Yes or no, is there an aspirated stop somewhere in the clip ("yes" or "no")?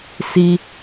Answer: no